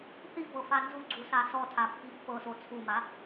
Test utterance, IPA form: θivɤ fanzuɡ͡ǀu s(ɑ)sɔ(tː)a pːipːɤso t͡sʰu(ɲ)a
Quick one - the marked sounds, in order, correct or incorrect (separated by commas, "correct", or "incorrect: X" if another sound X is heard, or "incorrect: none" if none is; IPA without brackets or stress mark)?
incorrect: a, incorrect: tʰ, incorrect: m